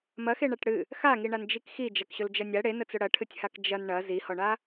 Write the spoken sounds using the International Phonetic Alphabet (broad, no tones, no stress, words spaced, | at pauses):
mɐxeɳaʈ ɽɨ | xaŋiɳand͡ʒik xid͡ʒɐkɕɵld͡ʒɐ nʲa ɽenət͡sɵ ɽɐʈʰɨtʲhak d͡ʒɐn ɳɐ zihɔɳa